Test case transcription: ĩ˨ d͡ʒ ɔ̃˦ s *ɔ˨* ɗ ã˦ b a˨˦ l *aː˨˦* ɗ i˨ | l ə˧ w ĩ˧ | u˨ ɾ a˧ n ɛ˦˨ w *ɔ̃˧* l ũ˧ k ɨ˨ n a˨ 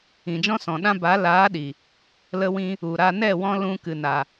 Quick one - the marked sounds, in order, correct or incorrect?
incorrect, correct, correct

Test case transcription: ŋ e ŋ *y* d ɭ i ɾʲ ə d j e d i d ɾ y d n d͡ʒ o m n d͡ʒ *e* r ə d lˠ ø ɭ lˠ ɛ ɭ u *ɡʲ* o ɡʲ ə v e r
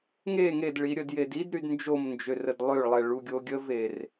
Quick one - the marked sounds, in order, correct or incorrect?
incorrect, incorrect, correct

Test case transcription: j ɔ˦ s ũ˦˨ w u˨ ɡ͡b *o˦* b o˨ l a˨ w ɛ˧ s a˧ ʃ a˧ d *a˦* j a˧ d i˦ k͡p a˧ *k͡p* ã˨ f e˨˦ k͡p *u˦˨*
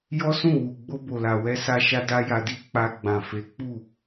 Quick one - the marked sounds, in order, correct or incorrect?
incorrect, correct, incorrect, correct

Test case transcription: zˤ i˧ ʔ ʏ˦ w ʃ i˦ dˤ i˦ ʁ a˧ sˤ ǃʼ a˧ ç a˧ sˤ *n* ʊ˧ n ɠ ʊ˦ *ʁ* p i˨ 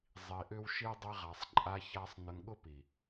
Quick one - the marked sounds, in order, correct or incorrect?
correct, incorrect

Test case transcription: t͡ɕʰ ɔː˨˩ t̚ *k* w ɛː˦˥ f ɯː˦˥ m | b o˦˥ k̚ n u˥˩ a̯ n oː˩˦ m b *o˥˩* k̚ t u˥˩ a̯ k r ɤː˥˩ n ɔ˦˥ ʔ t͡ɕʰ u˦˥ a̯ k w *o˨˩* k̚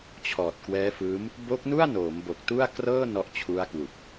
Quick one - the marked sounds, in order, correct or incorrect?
correct, incorrect, incorrect

